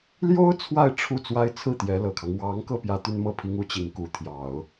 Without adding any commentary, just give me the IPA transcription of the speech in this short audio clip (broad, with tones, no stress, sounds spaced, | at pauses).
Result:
l j o˥ ʊ̯ t͡sʰ w a˥˧ ɪ̯ ʈ͡ʂʰ u˥˩ t͡s w a˥ ɪ̯ t͡sʰ ɹ̩˥˩ t̪ j ɛ˧˥ l ɤ˨˩ kʰ ɑ˦ ŋ w ɑ˧˥ ŋ k ɤ˧ p j ä˥ t̪ y˥ n m ɤ˥˩ pʰ i˥ ŋ u˧˥ t͡ɕ i˧˥ ŋ k u˧˥ t̪ʰ j ɑ˨˩˦ ʊ̯